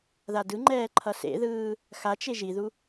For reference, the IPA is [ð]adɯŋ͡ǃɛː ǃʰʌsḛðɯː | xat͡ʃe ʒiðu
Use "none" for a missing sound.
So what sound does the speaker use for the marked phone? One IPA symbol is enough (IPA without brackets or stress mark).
ð